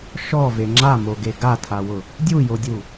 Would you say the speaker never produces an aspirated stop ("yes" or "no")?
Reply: no